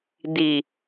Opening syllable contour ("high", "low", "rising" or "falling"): low